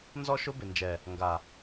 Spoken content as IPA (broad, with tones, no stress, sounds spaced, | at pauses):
n z ɔ˦ ʃ ʊ˦ b ɪ˨ n d͡ʒ ɛ˨ | ŋ ɡ a˨